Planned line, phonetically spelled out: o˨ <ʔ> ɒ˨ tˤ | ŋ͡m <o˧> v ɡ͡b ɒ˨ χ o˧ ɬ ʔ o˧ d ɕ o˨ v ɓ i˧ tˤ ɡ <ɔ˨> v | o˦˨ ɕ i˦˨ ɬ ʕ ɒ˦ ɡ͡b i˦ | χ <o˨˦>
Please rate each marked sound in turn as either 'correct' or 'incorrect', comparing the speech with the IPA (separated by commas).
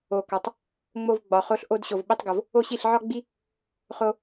incorrect, correct, incorrect, incorrect